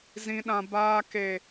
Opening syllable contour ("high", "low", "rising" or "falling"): high